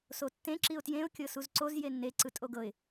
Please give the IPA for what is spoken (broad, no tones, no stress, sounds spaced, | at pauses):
s o tː ẽ ǁ i ʊ̯ t j ẽ ʊ̯ kʲ ɤ s u z ǀ o z j e nː e ǀ ɯ tʼ o ɡ ɤ ɪ̯